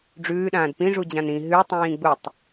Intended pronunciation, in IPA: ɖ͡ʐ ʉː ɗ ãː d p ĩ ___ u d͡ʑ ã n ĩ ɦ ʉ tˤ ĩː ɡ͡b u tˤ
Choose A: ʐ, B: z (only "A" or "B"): A